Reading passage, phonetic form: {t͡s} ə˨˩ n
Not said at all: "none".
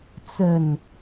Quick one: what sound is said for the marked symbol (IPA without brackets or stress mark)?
t͡s